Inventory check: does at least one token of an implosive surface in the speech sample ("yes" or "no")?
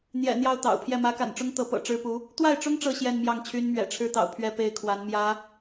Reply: no